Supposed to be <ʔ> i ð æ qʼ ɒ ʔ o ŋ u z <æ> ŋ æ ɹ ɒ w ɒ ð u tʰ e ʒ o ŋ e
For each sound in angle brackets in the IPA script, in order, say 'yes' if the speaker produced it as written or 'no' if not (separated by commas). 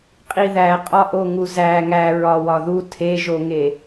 no, yes